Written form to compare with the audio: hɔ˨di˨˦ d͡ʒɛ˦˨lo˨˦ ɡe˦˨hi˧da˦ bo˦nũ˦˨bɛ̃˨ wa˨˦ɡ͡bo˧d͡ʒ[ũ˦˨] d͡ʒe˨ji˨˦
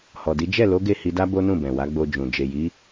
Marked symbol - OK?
no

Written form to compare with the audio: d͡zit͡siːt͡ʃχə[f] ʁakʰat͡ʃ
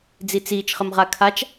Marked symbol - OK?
no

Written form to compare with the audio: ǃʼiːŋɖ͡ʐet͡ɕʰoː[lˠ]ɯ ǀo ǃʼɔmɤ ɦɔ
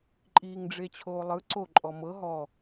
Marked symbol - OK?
yes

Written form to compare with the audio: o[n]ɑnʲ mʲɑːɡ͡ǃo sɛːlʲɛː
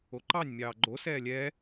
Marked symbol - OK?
no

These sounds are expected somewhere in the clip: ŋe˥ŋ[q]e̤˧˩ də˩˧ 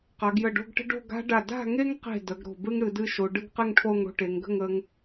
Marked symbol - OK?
yes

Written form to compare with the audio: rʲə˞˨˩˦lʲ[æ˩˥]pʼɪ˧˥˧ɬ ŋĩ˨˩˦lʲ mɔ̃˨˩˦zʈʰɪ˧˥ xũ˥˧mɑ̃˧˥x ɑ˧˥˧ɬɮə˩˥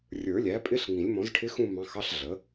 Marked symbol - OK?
yes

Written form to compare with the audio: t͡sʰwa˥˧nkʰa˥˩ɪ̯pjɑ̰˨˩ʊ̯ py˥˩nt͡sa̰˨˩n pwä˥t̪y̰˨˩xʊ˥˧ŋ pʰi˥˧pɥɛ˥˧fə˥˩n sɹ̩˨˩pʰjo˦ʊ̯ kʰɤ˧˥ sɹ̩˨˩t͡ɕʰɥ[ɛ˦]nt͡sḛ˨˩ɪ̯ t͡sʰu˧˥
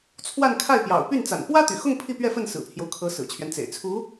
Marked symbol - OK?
yes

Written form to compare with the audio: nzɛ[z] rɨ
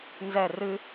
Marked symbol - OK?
no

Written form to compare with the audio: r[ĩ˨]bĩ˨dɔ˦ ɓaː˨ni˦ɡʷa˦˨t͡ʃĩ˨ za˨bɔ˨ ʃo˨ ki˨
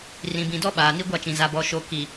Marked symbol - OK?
yes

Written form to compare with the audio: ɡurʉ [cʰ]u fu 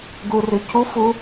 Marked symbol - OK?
yes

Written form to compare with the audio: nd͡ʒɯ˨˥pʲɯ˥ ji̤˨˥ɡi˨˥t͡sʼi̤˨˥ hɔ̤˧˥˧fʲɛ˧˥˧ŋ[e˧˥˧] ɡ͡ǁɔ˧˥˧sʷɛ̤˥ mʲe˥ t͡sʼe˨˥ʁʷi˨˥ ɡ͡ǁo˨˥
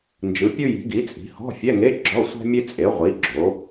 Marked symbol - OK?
yes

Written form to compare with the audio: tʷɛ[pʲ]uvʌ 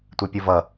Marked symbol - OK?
yes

